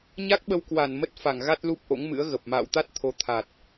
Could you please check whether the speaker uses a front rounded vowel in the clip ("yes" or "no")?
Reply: no